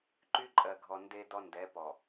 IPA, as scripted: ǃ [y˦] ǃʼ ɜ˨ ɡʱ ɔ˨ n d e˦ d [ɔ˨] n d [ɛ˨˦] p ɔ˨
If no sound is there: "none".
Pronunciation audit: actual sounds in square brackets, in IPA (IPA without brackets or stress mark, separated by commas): y˦, ɔ˦, ɛ˨˦